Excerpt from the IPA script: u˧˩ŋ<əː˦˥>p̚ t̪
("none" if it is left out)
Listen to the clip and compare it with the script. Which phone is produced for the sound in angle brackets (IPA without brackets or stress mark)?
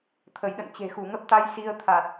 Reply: ə˦˥